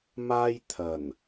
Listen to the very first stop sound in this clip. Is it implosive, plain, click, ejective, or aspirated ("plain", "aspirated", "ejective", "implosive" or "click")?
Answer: aspirated